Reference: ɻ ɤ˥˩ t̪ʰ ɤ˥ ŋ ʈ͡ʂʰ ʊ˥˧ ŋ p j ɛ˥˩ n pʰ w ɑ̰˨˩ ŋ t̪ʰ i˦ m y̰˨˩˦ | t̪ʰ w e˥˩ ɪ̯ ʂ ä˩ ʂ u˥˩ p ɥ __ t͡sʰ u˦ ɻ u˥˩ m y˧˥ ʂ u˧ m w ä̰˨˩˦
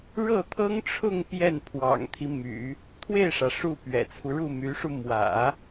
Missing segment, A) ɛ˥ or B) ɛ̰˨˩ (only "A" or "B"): B